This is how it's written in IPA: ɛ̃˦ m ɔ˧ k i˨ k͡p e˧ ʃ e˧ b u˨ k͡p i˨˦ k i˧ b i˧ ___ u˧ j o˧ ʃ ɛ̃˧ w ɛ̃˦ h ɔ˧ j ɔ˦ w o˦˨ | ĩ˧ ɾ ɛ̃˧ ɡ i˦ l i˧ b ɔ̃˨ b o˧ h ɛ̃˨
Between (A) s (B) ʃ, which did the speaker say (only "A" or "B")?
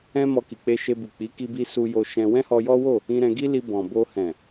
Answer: A